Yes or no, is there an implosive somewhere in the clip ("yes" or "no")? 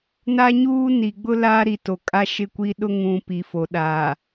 yes